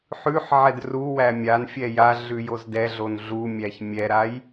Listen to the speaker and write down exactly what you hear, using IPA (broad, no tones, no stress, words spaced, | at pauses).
ħʉħʕɛd ruwæ mʲan fʲɛjaɮʉ jozdɛɮon ɮumʲæç mʲɛɾaj